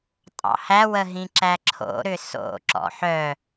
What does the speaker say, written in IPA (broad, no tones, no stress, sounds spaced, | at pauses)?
tʼ ɑ̰ h æ w ə ɦ ĩ ǁ æ ǁʰ o̰ ɾ ʏ s o̰ ǁ ɔ̰ ħ œ